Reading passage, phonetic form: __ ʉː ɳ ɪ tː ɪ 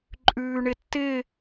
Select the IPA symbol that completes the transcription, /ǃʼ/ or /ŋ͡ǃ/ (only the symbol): ǃʼ